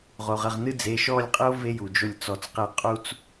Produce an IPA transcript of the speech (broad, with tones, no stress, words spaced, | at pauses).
ʁo˩ʁ ə˩˧˩ʁnɨ˥d͡ze˩˧˩ ʃɔ˥˨lʲqʼɨ˥o̯ ve˥ju˩ d͡ʒo˥˨lʲt͡sɔ˧t͡sqe˥˨ qʼu˥t͡s